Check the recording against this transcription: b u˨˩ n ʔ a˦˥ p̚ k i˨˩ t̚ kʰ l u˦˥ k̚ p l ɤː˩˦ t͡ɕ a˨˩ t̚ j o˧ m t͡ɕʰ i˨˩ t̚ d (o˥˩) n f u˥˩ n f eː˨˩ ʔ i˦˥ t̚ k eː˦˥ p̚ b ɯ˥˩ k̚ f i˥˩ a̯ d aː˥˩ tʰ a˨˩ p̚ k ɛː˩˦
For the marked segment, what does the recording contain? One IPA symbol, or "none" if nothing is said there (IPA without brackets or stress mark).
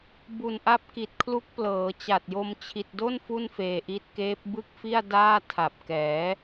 o˥˩